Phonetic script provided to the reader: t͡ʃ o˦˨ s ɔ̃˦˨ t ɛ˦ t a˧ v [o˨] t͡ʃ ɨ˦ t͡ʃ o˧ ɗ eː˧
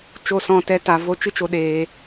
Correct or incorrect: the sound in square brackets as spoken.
incorrect: o˦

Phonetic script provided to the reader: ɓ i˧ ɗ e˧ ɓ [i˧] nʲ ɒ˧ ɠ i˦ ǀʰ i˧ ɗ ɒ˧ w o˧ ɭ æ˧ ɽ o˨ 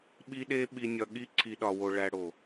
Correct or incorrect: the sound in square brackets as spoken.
correct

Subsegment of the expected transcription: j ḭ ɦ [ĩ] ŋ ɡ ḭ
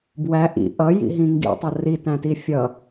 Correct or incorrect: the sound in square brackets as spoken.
correct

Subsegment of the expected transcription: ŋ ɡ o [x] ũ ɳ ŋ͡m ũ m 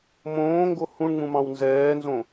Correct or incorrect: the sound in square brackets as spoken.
incorrect: h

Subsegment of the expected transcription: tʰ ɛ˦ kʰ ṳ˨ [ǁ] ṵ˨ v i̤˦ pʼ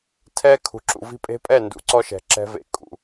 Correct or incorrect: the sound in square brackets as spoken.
correct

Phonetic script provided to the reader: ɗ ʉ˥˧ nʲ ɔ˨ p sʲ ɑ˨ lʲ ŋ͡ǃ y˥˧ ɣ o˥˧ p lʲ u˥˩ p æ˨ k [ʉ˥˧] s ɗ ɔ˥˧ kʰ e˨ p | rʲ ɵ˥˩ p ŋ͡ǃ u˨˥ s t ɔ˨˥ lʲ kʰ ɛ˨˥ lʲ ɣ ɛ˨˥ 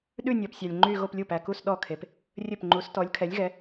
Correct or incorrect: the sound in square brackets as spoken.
incorrect: u˥˧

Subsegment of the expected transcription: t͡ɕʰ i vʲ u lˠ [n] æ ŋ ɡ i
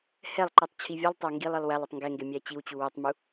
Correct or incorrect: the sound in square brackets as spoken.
incorrect: tˤ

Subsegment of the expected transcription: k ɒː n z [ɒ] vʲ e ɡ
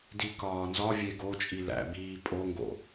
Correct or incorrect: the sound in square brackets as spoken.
correct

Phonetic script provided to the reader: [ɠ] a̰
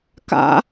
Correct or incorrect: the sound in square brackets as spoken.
incorrect: k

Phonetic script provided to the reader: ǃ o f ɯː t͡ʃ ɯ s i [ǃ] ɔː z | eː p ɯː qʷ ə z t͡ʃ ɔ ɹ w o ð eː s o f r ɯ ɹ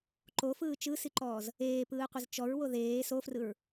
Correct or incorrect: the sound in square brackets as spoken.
correct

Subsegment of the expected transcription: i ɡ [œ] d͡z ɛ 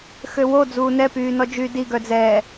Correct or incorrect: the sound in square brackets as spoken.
correct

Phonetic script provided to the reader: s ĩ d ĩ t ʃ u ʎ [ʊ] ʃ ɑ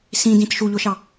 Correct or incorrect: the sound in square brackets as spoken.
correct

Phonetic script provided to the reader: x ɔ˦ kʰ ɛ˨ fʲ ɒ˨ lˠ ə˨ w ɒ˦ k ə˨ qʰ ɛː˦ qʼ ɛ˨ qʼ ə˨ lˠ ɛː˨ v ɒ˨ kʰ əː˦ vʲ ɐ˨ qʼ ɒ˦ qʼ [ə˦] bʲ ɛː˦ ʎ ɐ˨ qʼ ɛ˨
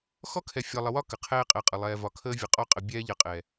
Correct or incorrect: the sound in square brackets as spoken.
incorrect: ə˨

